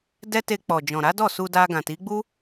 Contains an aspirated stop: no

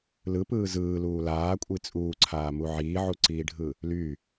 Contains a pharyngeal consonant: yes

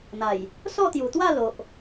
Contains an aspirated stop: no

